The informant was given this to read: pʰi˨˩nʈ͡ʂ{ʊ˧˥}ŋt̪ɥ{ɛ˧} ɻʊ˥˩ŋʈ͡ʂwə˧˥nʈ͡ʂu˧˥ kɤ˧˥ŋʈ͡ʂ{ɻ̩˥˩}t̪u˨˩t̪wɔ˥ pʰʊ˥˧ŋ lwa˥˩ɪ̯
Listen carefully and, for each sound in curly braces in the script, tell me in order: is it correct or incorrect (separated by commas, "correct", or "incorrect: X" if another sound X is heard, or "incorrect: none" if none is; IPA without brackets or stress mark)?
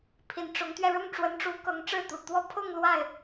correct, correct, correct